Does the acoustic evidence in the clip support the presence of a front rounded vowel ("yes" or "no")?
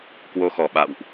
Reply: no